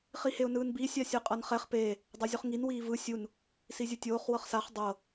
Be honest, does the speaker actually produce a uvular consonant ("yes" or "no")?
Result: yes